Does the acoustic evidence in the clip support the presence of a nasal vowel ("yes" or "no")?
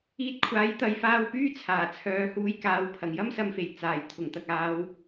no